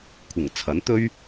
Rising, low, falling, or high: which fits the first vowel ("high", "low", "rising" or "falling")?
low